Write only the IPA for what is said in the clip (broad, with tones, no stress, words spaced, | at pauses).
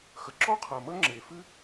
xə˩ǁɔ˥qʰɐ˩ mə˥ŋ͡ǁe˩fɨ˥